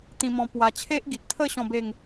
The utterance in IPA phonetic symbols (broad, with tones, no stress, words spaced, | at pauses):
t̪ĩ˧mɔ̃˧ pwa˧ t͡ɕʰe˦ʔɡi˨t̚t̪ʰə˥˧ ɕɔ̃˥˧be˥˧ŋ